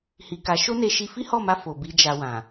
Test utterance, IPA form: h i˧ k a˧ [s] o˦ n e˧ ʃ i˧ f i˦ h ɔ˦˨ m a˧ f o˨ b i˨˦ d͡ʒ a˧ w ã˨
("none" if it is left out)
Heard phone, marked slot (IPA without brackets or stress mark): ʃ